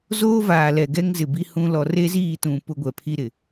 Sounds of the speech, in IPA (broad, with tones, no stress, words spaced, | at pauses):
zoː˦vaː˨lɛ˨ ɡɛ˦ŋzɪ˨ bi˦hũ˦ lɔ˨re˦ziː˦˨tũ˨ pʊ˦ɡʷɛ˨pʰi˦ɾɪ˨